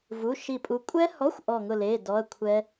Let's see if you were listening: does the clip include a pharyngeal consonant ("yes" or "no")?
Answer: no